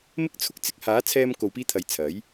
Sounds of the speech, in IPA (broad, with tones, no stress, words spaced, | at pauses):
mɪ˥k̚t͡sʰʊ˥k̚ t͡sɪ˧k̚haː˨˥ t͡sʰɛː˧mko˨wpiː˧t̪ʰɐ˨j t͡sʰɐ˨˥j